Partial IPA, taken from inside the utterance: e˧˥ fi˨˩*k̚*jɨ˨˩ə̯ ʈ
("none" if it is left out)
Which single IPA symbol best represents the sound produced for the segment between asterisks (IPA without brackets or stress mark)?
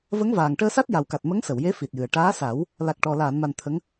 t̚